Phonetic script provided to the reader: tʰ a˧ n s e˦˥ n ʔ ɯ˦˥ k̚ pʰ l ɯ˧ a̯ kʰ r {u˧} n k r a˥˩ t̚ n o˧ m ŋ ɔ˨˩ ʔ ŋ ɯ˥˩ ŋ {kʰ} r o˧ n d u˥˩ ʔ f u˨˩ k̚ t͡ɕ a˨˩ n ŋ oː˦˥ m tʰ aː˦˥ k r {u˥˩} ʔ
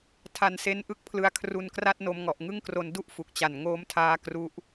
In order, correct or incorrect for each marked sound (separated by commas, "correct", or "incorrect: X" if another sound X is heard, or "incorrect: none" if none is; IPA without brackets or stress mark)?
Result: correct, incorrect: k, incorrect: u˦˥